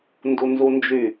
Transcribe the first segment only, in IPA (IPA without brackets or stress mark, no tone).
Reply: n